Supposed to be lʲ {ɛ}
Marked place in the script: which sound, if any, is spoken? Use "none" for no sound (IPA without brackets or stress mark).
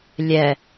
ɛ